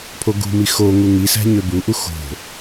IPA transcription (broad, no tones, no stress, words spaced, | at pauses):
pʰoɡṳmi xo ŋuŋisæ̤ ɲøbuʔu xo̤